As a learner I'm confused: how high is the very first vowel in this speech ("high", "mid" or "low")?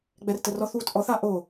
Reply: mid